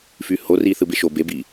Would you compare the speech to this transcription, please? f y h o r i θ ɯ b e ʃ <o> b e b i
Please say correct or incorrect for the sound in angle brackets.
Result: correct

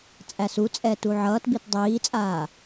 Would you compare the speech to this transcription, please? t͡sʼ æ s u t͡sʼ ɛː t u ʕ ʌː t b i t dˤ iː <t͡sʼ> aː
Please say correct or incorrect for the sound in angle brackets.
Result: correct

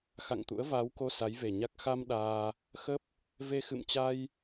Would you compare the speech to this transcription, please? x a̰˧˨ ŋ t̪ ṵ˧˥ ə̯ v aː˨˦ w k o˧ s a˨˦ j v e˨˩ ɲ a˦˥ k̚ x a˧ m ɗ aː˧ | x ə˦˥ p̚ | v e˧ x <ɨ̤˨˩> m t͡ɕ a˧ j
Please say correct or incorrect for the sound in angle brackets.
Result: incorrect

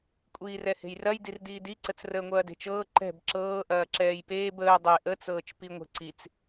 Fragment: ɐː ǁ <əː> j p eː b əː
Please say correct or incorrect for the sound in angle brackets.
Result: incorrect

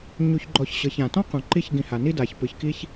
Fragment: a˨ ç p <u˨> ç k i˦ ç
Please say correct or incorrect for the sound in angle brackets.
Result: incorrect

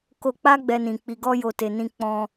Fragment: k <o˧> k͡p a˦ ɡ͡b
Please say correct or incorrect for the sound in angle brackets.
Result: correct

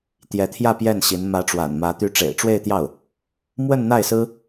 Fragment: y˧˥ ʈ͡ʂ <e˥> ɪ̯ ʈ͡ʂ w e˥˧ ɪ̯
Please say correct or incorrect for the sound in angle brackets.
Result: incorrect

